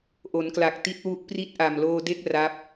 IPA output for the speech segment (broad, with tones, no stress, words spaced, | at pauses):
ʔo˩˦nkla˨˩k̚ ti˦˥t̚wu˦˥ʔ pri˥˩t̚ʔa˨˩mloː˧de˥˩k̚ ra˦˥p̚